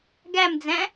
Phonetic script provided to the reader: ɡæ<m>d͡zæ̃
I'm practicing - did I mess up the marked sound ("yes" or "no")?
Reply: no